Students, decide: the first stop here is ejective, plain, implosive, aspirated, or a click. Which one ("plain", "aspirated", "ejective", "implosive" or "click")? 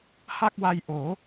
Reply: plain